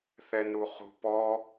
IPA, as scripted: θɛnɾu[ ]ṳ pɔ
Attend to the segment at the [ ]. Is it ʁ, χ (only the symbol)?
χ